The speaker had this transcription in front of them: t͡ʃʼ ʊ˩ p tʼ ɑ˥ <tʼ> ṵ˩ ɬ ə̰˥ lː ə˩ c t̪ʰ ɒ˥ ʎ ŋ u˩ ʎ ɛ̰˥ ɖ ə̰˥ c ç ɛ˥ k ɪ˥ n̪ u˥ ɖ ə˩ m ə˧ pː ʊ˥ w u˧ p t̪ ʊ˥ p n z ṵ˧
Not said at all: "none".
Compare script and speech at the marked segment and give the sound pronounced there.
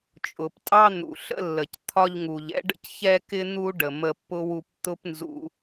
n̪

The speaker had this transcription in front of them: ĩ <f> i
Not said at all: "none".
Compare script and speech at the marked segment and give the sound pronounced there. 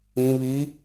β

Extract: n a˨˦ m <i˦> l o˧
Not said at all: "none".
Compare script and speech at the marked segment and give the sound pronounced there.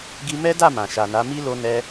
i˦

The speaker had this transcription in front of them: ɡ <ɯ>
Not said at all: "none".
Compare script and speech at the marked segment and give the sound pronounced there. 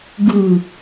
ɯ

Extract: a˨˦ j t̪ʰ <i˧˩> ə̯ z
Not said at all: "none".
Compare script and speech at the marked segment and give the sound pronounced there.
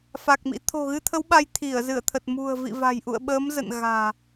i˧˩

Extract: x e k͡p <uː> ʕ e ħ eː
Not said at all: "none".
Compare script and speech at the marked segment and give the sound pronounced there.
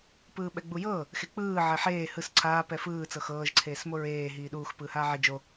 ɯː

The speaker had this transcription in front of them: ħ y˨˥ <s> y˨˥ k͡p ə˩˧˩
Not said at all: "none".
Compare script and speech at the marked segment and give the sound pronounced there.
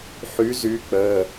z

